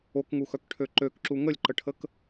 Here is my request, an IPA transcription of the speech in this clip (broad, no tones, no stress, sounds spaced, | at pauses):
o k ŋ u x œ k ʈʰ ø ǃ ø k ǁ u ŋ ə lʲ ǃ ə ʈʰ ə k